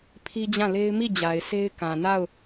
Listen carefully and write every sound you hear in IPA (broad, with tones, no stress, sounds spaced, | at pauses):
pʰ i˦ d͡ʑ ã˦˨ l e˦ ɪ̯ m i˦˨ d͡ʑ a˨ ɪ̯ s e˦ ɪ̯ k ã˨ n a˦˨ ʊ̯